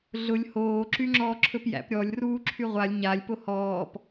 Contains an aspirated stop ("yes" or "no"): yes